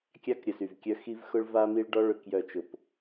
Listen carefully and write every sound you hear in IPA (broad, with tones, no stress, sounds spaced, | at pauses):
kʲ a˦ k ɾʲ ə˨ s y˨ v kʲ œ˧ x i˧ v x ʊ˧ ɭ v a˧ m i˧ ɭ ɖ ɔ˧ ɭ ʏ˨ k j œ˨ t͡ʃ ʊ˨ p